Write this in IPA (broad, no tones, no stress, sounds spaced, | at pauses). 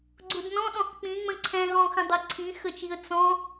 ɡ͡ǀ ʊ d n ɔ̃ ɗ ɔ̃ x k͡p ĩ ŋ͡m ə̃ ǀʰ ɛ̃ ɦ ɔ̃ x ə̃ dˤ ʌ ǀʰ ĩ x ə t͡ʃ i ə̯ t͡s ɔ̃